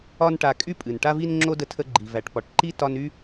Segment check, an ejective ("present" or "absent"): present